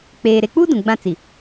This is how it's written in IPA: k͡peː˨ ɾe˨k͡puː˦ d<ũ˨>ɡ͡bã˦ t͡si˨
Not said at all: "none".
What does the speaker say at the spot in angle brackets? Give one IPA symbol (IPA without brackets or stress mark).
ũ˨